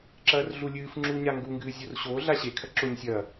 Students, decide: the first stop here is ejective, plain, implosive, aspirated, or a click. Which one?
click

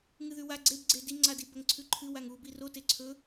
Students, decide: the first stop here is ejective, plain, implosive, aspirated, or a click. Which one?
click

